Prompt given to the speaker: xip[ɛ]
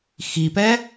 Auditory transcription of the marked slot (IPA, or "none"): ɛ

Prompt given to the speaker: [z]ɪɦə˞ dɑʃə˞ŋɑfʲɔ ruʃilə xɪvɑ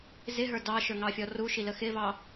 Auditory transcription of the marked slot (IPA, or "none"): z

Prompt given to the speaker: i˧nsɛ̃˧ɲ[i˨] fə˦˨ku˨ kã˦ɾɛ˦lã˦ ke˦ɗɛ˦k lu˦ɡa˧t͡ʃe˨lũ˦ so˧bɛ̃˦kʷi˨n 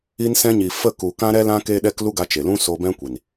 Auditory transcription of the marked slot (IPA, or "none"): i˨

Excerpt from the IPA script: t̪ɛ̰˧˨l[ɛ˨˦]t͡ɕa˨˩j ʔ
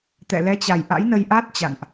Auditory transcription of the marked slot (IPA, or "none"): ɛ˨˦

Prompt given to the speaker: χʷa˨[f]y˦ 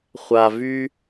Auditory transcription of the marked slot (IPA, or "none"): v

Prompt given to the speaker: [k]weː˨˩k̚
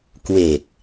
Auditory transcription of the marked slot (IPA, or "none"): k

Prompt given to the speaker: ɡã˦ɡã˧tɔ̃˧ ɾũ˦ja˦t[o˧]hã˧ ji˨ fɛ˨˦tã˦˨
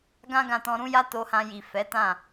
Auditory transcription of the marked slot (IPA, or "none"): o˧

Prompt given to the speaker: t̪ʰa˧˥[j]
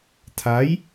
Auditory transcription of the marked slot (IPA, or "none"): j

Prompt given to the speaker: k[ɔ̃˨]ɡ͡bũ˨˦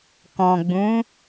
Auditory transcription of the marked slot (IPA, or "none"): ɔ̃˨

